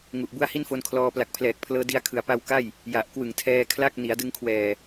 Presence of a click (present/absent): absent